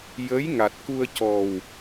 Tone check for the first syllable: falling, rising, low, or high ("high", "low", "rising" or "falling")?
rising